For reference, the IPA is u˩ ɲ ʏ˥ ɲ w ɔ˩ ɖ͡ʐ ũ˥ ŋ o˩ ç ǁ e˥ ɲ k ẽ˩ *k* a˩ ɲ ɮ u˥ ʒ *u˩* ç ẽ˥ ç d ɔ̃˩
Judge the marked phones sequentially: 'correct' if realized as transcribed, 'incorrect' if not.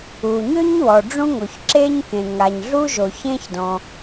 incorrect: ŋ, incorrect: o˩

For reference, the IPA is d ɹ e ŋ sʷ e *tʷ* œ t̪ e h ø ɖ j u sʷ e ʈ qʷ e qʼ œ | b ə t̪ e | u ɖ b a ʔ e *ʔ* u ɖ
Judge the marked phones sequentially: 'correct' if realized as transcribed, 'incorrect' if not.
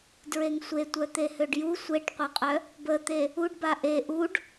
correct, correct

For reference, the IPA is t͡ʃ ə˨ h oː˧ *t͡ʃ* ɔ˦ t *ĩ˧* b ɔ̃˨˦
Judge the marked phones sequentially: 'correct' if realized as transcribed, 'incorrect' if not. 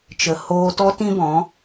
incorrect: t, incorrect: ĩ˦

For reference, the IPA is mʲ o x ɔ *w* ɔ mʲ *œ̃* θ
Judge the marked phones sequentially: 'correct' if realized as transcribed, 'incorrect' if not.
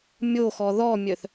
incorrect: ð, incorrect: œ

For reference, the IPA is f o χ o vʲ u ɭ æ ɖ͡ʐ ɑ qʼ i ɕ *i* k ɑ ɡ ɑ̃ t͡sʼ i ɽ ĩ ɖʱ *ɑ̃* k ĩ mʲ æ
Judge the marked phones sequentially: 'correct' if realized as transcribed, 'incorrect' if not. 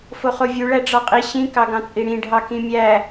incorrect: ĩ, incorrect: ɑ

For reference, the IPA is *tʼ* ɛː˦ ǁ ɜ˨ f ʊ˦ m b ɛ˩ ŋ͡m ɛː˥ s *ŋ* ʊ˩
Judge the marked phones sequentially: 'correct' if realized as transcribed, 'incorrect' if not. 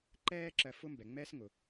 incorrect: ǃ, correct

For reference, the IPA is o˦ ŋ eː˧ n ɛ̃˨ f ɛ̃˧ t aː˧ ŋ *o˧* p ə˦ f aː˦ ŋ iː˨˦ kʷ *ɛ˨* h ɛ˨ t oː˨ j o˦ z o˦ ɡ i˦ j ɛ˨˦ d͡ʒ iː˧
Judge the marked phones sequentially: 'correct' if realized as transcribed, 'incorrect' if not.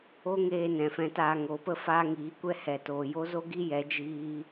incorrect: o˨˦, incorrect: ɛ˦

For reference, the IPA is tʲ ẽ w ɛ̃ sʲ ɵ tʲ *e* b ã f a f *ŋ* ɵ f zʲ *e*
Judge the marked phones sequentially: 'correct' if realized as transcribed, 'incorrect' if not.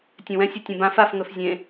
incorrect: ẽ, correct, incorrect: ẽ

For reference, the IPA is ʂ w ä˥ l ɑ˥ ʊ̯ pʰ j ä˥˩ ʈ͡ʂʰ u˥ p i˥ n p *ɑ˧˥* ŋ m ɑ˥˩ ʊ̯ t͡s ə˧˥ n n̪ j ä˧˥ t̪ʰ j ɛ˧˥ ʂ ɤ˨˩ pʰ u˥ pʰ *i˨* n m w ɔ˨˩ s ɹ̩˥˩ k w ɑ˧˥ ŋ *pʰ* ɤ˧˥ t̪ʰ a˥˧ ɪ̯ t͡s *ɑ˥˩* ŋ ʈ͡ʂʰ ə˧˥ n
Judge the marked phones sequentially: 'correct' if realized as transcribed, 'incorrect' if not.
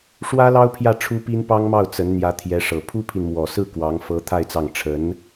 incorrect: ɑ˥, correct, incorrect: f, correct

